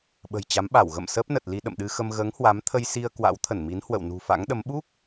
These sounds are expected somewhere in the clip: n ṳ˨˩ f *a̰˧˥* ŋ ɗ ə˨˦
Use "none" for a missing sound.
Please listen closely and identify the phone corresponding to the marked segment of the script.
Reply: a̰˧˥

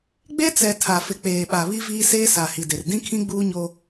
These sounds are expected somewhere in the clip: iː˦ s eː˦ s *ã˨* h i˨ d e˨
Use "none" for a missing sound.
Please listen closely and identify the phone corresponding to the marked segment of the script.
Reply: a˨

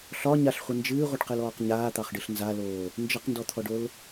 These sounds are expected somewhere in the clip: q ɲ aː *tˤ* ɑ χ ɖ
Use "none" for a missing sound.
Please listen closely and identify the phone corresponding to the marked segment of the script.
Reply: t̪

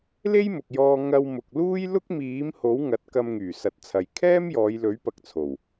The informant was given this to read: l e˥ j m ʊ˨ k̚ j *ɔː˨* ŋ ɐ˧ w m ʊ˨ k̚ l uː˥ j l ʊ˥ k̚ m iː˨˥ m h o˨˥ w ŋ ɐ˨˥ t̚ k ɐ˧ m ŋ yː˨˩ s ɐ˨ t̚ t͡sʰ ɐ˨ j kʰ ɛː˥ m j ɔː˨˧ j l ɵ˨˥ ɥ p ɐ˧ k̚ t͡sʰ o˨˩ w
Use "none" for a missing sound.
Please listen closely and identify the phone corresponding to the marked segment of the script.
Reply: ɔː˧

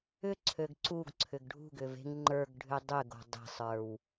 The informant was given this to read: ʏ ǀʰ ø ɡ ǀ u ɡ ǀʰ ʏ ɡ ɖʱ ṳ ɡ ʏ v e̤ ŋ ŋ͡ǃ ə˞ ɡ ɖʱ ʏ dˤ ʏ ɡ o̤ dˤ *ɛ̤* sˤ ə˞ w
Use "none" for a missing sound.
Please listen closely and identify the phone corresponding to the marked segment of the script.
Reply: e̤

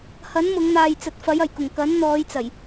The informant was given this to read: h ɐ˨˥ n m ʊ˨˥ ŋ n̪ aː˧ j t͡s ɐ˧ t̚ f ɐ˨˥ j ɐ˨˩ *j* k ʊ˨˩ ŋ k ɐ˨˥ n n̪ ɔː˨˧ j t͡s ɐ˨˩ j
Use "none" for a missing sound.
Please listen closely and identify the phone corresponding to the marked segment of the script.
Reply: j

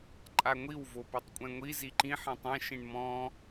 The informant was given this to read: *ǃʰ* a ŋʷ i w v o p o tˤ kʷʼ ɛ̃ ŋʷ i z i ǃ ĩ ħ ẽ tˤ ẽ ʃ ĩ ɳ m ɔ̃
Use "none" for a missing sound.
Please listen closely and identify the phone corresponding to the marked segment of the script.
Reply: ǃʼ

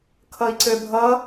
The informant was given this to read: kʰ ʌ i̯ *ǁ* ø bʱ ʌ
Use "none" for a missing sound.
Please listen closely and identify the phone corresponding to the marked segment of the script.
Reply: ǀ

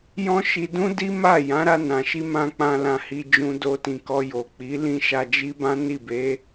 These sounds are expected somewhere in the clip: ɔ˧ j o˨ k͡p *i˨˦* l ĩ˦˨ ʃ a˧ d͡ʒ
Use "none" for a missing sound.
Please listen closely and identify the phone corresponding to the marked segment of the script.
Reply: i˨˦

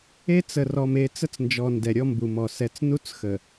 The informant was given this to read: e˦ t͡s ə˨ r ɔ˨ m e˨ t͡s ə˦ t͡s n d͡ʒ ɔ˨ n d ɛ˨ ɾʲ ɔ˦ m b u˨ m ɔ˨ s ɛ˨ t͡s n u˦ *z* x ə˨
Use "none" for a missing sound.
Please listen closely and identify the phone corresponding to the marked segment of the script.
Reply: t͡s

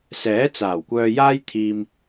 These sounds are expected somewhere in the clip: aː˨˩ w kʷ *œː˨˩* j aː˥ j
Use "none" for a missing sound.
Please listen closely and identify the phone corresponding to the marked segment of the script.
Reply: œː˧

